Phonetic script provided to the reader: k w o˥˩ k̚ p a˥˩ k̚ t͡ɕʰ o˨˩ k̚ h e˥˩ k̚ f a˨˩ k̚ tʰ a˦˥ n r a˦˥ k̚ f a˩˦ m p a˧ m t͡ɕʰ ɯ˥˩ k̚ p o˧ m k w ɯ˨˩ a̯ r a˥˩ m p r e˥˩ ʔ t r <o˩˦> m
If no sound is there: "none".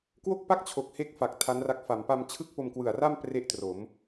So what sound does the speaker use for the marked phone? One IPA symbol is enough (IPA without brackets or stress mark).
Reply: o˩˦